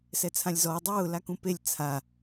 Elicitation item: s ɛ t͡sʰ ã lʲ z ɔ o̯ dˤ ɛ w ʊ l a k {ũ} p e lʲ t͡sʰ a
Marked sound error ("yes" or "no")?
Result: no